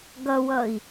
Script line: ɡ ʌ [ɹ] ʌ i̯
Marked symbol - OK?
no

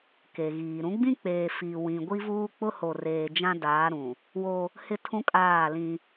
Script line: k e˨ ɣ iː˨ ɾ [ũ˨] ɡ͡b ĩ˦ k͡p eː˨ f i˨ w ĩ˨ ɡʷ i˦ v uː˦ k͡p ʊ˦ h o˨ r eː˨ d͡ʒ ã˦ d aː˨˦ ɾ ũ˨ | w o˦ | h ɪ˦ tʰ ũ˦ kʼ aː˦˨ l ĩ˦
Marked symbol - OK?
no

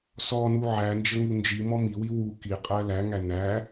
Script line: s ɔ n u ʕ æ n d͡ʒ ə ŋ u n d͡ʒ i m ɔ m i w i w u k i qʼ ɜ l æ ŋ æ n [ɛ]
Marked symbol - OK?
no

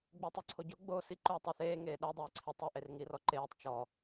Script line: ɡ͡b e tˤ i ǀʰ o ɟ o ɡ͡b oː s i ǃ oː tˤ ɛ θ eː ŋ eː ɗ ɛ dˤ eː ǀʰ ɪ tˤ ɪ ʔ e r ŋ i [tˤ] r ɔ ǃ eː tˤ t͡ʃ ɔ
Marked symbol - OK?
no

